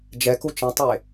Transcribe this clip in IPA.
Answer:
d͡ʒ ɛ k u t͡ʃ ĩ tˤ e

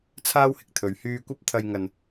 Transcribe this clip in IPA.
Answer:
t͡sʰ aː˥ w h ɪ˨ k̚ t̪ʰ ɵ˨˧ ɥ h yː˧ kʷ ɐ˥ p̚ t̪ʰ ɐ˧ j ŋ ɐ˧ n

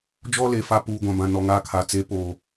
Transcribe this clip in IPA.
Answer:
d͡ʒ ɔ˦ l e˨ f a˦ p uː˨ ɡʷ ã˨ b ã˨ n ɔ˨ ŋ aː˦˨ kʰ a˨ t͡s e˨˦ p oː˨

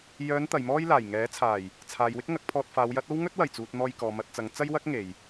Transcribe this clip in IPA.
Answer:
j œː˨˧ n t̪ ɐ˨ j m ɔː˥ j l aː˨˩ j ŋ ɛː˨˥ t͡sʰ aː˨˩ j | t͡sʰ aː˨ j w ɪ˥ k̚ ŋ ɐ˨˥ k̚ pʰ ɔː˧ t̚ f aː˨˧ w j ɐ˨˥ t̚ o˥ w ŋ ɵ˥ t̚ w ɐ˨˩ j t͡s uː˨ t̚ n̪ ɔː˧ j k ɔː˨ m ɐ˧ t̚ t͡s ɐ˨˧ ŋ t͡s ɐ˥ j w ɐ˥ k̚ ŋ e˨ j

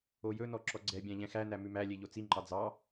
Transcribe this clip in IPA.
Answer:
o j ɵ n ɔ ǁ ɔ ɡ͡ǀ ɛ bʲ æ̃ ʎ ɛ̃ x æ n æ m ʉ m æ lʲ e ʎ o t͡s i ŋ͡ǃ ɑ d͡z ɑ

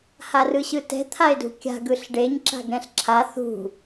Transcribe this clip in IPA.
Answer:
h a r ɯ ɕ ɯ t ɛ̤ t̪ʰ a e̯ d ṳ kʲ a̤ ɡ ɯ ɬ ɖ e ɲ ǁ a̤ ɡ ɾ ɛ̃ ɬ ǁʰ a θ ṳ

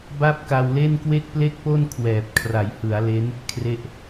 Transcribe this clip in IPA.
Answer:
b a˥˩ p̚ k a˧ w l e˥˩ n k w e˥˩ k̚ p l e˥˩ k̚ p o˥˩ n kʰ w ɛː˨˩ p̚ kʰ r a˩˦ j h ɯ˩˦ a̯ l e˦˥ n | kʰ r e˥˩ ʔ

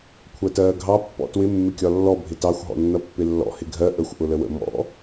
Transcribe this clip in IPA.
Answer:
kʷʰ ɜ t ɜː ɡʱ ɑ pː ɔ̰ t w ɪ mː ɪ kʲ ɒ lː ɔ bʱ ɪ t ɑ xʷ ɦ ɔ̰ nː ʌ pː ɪ lː ɔ̰ h ɪ ɡʱ ɜ ʔ ə xʷ ʔ ʊ l ə w ə̰ m ɔ̰

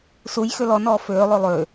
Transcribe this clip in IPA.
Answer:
s u j x ø l ɔ n ɔː f øː lˠ o lˠ ø

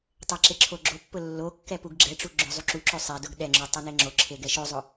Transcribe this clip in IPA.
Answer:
tˤ ɛ ǁ e ǁʰ o ɡ͡ǁ o pː ʊ lː o kː ɛ p u ɡ ɡ͡ǁ ɛ ʈ͡ʂ u ɡ͡ǁ ʊ zˤ u ǁ u ǁ o sˤ ɛ d ʊ ɡ ɗ ɛ ŋ͡ǁ u tˤ ɛ n e ŋ͡ǁ o ǁʰ e ɡ ɛ ʃ o zˤ ʊ

